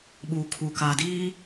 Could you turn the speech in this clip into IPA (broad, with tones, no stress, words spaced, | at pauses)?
ɓuː˨kʰu˨kaː˨diː˦